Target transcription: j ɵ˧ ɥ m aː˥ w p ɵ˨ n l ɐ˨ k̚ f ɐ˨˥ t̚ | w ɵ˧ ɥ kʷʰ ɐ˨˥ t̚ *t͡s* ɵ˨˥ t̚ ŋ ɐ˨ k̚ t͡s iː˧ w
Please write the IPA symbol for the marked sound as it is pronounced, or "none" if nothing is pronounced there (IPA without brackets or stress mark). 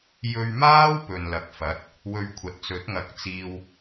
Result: t͡s